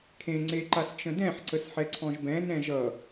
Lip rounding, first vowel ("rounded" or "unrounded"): unrounded